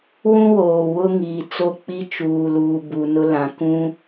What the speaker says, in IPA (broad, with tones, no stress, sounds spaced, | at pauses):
w ũ˦ w oː˨ w ʊ˦ ŋ iː˨ t͡s o˦˨ k͡p i˦ t͡ʃ uː˨ l uː˨ b u˨ n ʊ˦ l ã˨ k ũ˦